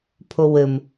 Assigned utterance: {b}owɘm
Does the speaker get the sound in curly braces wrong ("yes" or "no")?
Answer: yes